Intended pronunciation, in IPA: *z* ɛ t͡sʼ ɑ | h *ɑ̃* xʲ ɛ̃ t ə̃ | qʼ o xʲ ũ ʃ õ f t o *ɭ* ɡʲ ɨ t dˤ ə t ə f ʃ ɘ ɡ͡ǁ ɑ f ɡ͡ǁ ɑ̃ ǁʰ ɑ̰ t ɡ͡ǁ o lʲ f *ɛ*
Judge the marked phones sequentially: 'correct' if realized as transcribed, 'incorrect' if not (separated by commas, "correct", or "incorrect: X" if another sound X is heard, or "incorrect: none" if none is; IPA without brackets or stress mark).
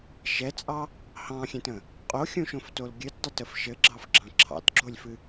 incorrect: ʃ, correct, incorrect: l, incorrect: ɨ